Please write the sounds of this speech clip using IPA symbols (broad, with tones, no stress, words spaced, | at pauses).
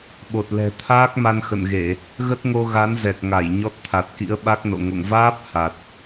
ɓo˨˩t̚lɛ̤˨˩ t̪ʰaː˦˥k̚ma˧nxə̰˧˨nɣe˧˩˨ | ɣə˦˥t̚ŋo˧ɣa˨˦n zɛ˨˩k̚ŋa˧˩j ɲɔ˦˥t̚ t̪ʰa˨˩t̚kḭ˧˥ə̯ ɓa˦˥k̚no̰˧˨ ŋo̰˧˨ŋvaː˦˥p̚ ha˨˩t̚